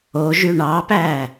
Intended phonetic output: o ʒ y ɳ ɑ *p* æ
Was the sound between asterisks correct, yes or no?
yes